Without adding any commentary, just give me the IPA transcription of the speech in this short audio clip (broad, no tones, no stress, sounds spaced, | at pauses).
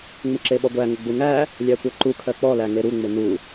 ŋ͡m ɪ ǁ e ɓ ɔ ɡʷ æ ŋ ə ɡ͡b u ŋ æ | lʲ æ kʷ ɜ ǃ u kʰ ɜ k͡p ɔ l æ ŋ e ɾ u ŋ͡m ɪ n u